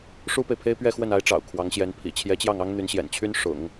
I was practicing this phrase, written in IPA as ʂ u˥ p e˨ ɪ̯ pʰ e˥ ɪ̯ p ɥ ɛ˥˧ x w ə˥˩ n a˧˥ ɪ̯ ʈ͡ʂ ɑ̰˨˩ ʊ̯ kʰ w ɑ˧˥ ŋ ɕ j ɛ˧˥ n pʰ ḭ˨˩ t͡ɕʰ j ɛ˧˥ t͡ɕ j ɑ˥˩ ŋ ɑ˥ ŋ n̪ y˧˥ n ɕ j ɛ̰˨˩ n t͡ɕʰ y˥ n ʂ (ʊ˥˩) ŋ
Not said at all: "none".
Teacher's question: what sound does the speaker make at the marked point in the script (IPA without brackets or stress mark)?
ʊ̰˨˩˦